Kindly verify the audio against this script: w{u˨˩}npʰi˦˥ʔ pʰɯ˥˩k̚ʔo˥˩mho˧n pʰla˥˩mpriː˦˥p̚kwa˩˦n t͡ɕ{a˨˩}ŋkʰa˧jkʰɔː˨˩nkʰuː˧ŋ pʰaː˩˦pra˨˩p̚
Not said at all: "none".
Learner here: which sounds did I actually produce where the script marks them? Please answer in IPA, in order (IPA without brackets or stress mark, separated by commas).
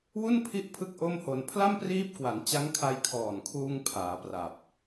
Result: u˥˩, a˦˥